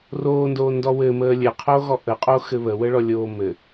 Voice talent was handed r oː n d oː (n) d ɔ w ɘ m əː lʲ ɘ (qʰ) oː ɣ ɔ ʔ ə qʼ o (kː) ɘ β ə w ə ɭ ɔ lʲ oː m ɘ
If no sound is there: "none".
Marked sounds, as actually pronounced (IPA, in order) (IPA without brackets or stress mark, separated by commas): n, qʰ, x